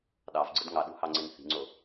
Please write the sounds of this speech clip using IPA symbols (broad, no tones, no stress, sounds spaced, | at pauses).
ɗ ɑ v ɡ͡ǀ ɯ d ŋ ɑ ɗ ṳ h ɑ ŋ͡ǀ e n θ i̤ ŋ͡ǀ o